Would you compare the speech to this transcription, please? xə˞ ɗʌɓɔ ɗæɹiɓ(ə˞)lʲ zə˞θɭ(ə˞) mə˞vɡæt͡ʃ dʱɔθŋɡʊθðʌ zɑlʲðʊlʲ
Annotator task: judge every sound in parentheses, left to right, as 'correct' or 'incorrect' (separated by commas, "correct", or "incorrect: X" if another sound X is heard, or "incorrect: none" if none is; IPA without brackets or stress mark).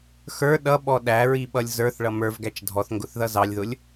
incorrect: ʌ, incorrect: ʌ